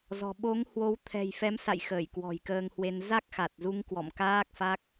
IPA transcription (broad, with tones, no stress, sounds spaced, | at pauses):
z ɔ̤˨˩ ɓ o˨˦ ŋ h w o˨˦ w t̪ʰ ɛ̤˨˩ j f ɛ˨˦ m s a̰˧˨ j x əː˧˩ j k w ɔ̤˨˩ j k əː˧ ŋ h w e˧ n z a˦˥ k̚ x a˨˩ t̚ z u˧ ŋ k w ɔ̰˧˨ m k aː˦˥ k̚ f a˦˥ k̚